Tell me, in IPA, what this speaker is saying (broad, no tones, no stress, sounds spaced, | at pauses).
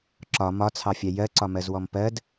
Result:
ǁ ɒ m ɒ t͡sʰ ɑ fʲ æ j ɜ ǀ ɒ m ɜ z w ɔ m p ɜ d